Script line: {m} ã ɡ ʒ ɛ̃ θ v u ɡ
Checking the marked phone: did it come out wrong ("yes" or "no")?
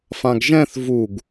yes